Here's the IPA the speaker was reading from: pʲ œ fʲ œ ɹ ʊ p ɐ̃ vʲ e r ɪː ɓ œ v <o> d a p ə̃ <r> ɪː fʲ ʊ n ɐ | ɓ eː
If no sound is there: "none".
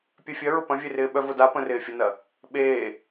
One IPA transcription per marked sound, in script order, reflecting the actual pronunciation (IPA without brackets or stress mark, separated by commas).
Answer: o, r